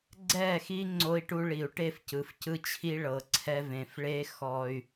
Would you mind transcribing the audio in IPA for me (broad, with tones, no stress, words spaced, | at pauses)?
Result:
ɡ͡ǀɛ˦˨xi˦ ŋ͡ǀo˧i̯ʈu˧ɭi˨u̯ʈe˦˨f cɯ˨fcɯ˦t͡ɕʰi˦ ɭɤ˨ǀʰɛ˧ vẽ˨f ɭe˦ xɔ˧y̯